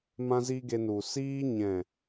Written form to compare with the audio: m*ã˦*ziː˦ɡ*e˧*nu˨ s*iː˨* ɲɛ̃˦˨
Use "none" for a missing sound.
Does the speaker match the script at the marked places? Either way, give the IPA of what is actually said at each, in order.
ã˦, e˧, iː˧

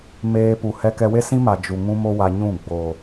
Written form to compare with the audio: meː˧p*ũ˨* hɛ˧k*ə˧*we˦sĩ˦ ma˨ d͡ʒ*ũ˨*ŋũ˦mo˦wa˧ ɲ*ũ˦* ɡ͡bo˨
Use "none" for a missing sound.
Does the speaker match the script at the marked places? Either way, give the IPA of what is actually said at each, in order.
u˨, ɛ˧, u˨, ũ˦˨

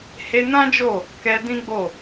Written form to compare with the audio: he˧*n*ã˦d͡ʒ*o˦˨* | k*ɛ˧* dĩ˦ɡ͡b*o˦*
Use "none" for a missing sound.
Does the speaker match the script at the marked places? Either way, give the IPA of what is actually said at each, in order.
n, o˦˨, ɛ˧, o˦˨

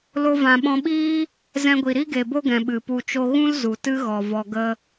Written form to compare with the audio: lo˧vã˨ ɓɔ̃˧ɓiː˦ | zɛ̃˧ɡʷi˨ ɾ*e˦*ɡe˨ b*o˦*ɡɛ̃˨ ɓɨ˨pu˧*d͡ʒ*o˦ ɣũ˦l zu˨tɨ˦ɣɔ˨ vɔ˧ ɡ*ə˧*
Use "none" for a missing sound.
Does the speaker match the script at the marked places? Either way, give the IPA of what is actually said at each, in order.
i˦, o˦, t͡ʃ, ə˦

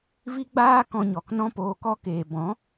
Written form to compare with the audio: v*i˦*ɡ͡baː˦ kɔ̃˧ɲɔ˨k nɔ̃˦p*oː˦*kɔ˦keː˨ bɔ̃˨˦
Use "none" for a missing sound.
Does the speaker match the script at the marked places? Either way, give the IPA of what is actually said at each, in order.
i˦, oː˧

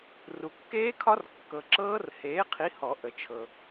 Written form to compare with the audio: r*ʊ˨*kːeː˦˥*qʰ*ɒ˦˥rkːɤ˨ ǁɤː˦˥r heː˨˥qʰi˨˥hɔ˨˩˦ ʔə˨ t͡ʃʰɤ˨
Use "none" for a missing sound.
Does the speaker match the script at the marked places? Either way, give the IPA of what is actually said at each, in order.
u˨, kʰ

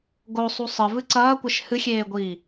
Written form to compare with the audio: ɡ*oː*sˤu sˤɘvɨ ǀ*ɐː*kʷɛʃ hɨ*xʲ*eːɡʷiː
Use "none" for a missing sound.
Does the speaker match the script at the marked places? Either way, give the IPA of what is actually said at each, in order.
o, ɐː, xʲ

